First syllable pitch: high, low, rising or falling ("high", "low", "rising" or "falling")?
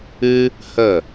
high